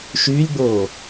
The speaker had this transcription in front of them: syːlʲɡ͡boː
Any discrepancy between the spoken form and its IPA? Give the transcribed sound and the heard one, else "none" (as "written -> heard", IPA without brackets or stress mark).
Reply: s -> ʃ